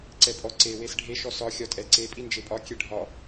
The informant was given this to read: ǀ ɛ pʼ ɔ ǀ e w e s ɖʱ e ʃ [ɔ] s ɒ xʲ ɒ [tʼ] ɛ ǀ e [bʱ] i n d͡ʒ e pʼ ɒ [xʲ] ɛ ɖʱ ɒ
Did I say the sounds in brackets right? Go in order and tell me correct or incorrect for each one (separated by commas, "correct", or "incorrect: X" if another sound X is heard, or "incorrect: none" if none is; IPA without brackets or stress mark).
correct, correct, incorrect: pʼ, incorrect: kʲ